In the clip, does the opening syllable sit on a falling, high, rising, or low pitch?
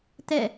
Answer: falling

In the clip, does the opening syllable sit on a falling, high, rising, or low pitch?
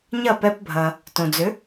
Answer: falling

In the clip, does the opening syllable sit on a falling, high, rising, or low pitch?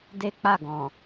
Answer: high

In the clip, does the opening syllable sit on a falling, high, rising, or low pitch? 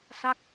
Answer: falling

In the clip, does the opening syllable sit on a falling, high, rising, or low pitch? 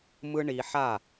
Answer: high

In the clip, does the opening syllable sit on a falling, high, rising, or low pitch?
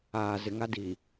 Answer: low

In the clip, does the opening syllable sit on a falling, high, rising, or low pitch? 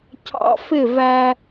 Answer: low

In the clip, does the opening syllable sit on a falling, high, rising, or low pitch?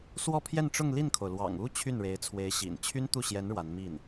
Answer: falling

